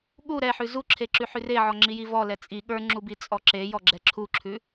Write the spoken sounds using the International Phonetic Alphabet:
ɠ u ɾ ɛ ħ ʉ z u ǁʰ e ǁ ʉ ħ ʉ r e ʕ ɔ ŋ͡ǁ i j i v ɔ l ɛ t͡sʼ i ɠ ə˞ ŋ͡ǁ u b i t͡sʼ ɔ ǁ e j ɔ ɡ͡ǁ ɛ ǁʰ u ǁʰ ʉ

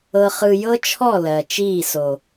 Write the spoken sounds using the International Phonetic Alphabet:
ɤ˧ χ ɯ˧ j ɤ˦ t͡ʃʰ ɔ˦˨ l ɜ˨ t͡ʃ iː˦˨ s o˨

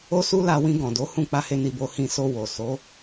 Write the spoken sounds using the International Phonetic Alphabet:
o˦ s u˦ l a˧ w ĩ˧ ɡ ɔ̃˨ d o˨˦ h ũ˦˨ k͡p a˧ h e˧ n i˧ b o˧ h ĩ˧ s o˧ w o˨ s o˨˦

